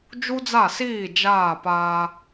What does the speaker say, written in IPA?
d͡ʒu˥d͡za˥˩siː˥˩ d͡ʒaː˥˩pa˧

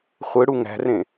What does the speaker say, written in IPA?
χʷɯɽu ŋæ̤rẽ

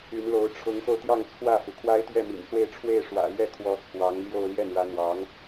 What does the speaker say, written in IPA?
y˧˥nlo˧˥ʊ̯ ʈ͡ʂʰʊ˧˥ŋxo˧ʊ̯t̪jɑ˥˧ŋ t͡sʰwä˥˩fu˩ kʰwa˥ɪ̯t̪ɥɛ˥˩mḭ˨˩nswe˥˧ɪ̯ ʈ͡ʂʰwe˥˩ɪ̯ ʂwä̰˨˩lɥɛ˥˩ kʰwɔ˧˥t͡sʰwɑ˧˥ŋ ljo˥˧ʊ̯ ljɛ˥˩nɻä˧˥n̪wɑ˧˥ŋ

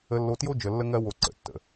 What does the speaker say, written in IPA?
ə˧lːo˧tjo˦ d͡ʒə˧lːə˦ŋɜ˦wo˧ ǀə̰˨tːə̰˨

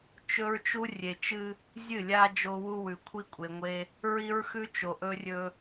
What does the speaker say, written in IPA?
t͡ʃɵ˦ɹt͡ʃu˦ rʲe˨t͡ʃɨ˦ | zʲɨ˦˨lʲa˦ d͡ʒo˦wu˦ wʉ˨kʷʰi˦kʷʼe˨ŋʷe˦ | ɹi˦ɹxʉ˦t͡ʃo˨ ʔɵ˦rʲɵ˦

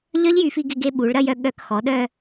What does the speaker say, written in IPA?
ʎœ˦˥ʎjy˩˧fi˧ ɡɪ˧ɡe˧ ɓu˩˧ɭɾɐ˧jœ˧ ɠœ˧˩˧kxɔ˩˧ɗœ˧

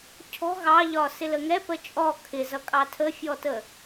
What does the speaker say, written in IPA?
cʰɔ̤ ɣɑʎɒ sɪləŋɛ pət͡ʃʼɔ kʰɪzʌ kʼɑtʰəfʲɔtə

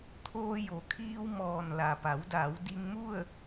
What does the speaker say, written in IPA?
t̪ʰoː˧jo˩kʰiː˧wmɔː˩n la˩pa˩˧wda˩˧w di˧ŋmu˥˨ə̯

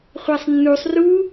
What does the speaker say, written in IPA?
χʷɜsˤnːusˤ ru

